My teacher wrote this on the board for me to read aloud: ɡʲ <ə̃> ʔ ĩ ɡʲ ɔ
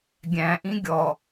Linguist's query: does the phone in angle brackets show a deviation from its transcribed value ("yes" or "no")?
yes